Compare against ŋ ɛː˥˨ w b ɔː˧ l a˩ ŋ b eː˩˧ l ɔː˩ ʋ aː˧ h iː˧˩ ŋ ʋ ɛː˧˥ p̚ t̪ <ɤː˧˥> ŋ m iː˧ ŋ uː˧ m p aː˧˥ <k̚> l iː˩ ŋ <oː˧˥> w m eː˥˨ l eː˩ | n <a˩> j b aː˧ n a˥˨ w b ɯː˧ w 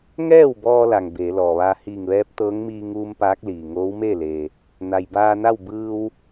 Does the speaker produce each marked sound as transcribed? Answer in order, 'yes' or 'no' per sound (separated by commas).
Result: yes, yes, yes, yes